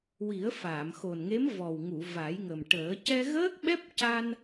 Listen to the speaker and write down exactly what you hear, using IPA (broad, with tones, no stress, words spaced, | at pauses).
wi˨˩˦ə̯faː˨˩˨mxo˨˩nŋe˧˥m vɔ˨˩w ŋu˨˩˨ va˨˩˦jŋə˨˩mʈəː˨˩˦ cɛ˧ɣəː˦˥k̚ɓɛ˦˥p̚ ca˧n